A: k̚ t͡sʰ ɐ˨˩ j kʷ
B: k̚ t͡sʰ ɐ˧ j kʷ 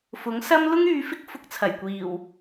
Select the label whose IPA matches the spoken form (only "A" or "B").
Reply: A